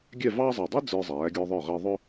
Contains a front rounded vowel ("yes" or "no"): no